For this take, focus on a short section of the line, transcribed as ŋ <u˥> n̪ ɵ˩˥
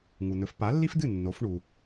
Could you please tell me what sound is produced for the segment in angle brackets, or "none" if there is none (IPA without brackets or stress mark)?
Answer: u˩